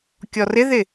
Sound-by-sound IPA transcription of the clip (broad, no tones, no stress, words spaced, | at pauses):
kʲɔrɪðɪ